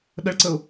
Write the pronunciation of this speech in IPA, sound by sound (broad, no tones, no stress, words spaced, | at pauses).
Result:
ɗəɭǀəʊ̯